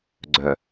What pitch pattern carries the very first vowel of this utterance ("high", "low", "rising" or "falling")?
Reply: low